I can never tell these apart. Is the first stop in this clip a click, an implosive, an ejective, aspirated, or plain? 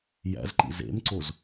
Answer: click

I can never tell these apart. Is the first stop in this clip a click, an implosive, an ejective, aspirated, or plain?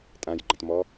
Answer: ejective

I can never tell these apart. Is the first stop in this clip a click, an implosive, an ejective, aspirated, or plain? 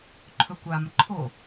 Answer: click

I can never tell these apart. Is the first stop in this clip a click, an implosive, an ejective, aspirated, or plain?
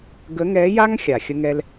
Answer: plain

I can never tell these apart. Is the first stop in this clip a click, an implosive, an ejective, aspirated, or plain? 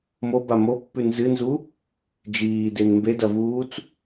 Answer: plain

